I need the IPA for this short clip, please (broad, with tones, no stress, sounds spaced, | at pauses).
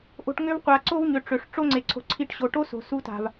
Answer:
ʔ o̤˧ ʈ ŋ ø˦ v qʷ a˨ ǀ o˦ v ɲ ø˨ ʈ͡ʂ ø˨ ʂ ʈ͡ʂ o˦ ŋ͡ǀ e˨ ǀʰ o̤˧ ǀʰ i˧ ʈ ɕ o˨ ʈ o˦ s o̤˨ s u˧ t a̤˨ v